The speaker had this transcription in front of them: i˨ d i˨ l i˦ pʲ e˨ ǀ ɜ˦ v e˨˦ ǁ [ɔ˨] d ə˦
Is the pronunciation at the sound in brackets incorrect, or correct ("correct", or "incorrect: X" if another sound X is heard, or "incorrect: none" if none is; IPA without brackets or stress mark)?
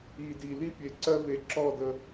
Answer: incorrect: ɔ˦˨